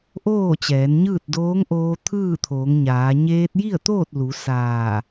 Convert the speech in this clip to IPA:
ʔ oː˥˨ t͡ɕ ɛː˩˧ n ɲ ɯː˥˨ t̚ d oː˧˥ ŋ ʔ oː˧ t̪ʰ ɯː˥˨ t̪ʰ oː˩˧ ŋ ɲ aː˩˧ ɲ eː˧ t̚ j i˥˨ ə̯ t̪ oː˥˨ t̚ l u˩˧ s aː˧˩

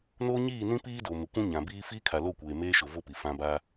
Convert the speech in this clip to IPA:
n oː˦ ɲ iː˦˨ n ĩ˦ p iː˦ d o˨ m ɪ˨ kʷ ũ˦ ɲ ã˨ b iː˦ f iː˦ kʰ a˨ l o˦˨ kʷ eː˨ m eː˦ ʃ ʊ˨ v o˦ p i˨ f ã˦ b aː˦

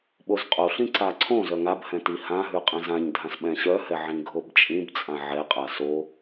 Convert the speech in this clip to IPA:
ɓ o z qʼ o ɬ ĩ ǀ a ǀʰ õ z œ ŋ a b h ɛ̃ t i h ã ɦ ʉ qʼ ĩ z ã ɲ dʱ ã s ɓ ɛ̃ ɕ œ h ɛ ʕ ĩ ɡʱ o b t͡ʃʼ ĩ b t͡sʼ ã ʕ ɛ qʼ a s o

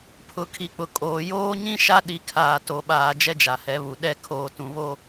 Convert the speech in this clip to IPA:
pʰ ʊ˨ kʰ i˨ k͡p ʊ˨ kʼ oː˨ j oː˦ ɲ ĩ˦ ʃ a˦ ɗ i˨ kʰ aː˨ t o˨ ɓ aː˨ d͡ʒ ɛ˦ d͡ʒ a˨ h ɛ˨˦ β u˨ ɗ ɛ˦˨ kʰ oː˨ t ũ˨ β o˦

